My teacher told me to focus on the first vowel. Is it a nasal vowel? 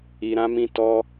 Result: no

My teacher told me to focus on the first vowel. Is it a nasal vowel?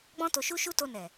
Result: yes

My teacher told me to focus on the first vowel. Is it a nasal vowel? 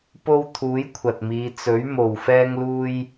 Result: no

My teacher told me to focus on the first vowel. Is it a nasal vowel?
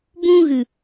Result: yes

